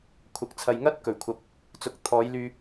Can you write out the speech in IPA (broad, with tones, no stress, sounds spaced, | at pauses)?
kʷʰ ɐ˨˥ k̚ t͡sʰ ɐ˨ j ŋ ɐ˥ t̚ k ɵ˨˩ ɥ kʷʰ ɐ˨ p̚ | t͡s ʊ˨˥ k̚ t̪ʰ ɔː˨˧ j l yː˧